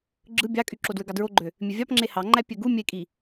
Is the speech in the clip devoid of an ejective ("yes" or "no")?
no